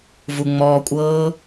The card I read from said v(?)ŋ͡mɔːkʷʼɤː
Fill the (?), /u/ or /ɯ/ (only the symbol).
u